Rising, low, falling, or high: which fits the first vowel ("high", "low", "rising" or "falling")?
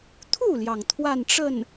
falling